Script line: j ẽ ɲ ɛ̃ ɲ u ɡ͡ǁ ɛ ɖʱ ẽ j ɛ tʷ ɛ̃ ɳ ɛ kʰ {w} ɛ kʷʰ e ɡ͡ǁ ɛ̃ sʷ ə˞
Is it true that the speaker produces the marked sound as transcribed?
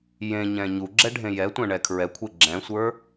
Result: no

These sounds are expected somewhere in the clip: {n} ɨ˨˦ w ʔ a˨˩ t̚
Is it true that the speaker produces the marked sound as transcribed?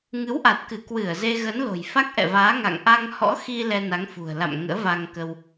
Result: no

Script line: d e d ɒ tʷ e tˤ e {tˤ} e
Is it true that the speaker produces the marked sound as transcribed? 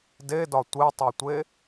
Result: no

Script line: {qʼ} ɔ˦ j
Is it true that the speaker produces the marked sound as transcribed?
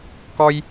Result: no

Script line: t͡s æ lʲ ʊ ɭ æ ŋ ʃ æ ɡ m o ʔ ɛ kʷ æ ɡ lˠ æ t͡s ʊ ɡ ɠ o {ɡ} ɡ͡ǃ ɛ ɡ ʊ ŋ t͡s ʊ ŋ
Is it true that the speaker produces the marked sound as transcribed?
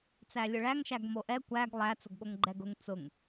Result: no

